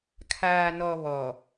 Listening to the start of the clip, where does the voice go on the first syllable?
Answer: low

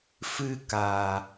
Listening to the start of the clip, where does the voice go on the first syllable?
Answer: high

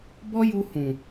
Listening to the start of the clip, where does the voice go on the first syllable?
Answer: high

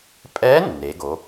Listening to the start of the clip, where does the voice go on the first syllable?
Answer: rising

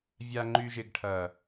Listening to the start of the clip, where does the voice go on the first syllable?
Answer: low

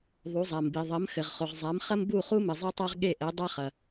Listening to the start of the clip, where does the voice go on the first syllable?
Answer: rising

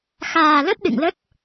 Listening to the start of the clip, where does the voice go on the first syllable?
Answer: low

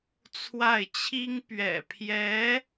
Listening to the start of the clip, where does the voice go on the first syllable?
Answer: falling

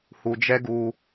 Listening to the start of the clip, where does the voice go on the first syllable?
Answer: low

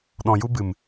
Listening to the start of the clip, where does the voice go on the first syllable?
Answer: low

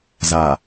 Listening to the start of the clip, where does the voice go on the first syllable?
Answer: low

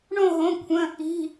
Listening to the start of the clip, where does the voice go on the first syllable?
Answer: falling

